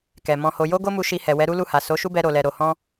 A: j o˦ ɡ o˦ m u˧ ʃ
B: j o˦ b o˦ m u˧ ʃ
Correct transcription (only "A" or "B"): A